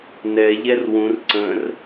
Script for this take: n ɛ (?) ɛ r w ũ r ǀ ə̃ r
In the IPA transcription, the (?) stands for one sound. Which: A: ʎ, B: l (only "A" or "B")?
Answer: A